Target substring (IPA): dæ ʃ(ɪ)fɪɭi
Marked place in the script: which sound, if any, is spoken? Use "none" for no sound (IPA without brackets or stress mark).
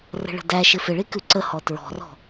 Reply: ɪ